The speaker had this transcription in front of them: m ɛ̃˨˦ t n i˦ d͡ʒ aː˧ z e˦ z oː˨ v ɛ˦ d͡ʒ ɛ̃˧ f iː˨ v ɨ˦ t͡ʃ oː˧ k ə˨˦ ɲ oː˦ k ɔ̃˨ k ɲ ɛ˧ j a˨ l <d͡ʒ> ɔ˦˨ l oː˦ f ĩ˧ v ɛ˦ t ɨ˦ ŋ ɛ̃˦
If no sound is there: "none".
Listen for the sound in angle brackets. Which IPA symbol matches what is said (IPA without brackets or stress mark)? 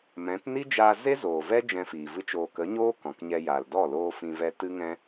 d